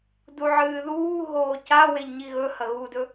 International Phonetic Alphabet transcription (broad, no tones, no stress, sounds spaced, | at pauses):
d u ʕ ɨː ð uː ɦ oː c a w e ʎ ɲ i ɣ ɵ h ɐ ɣ u d ɵ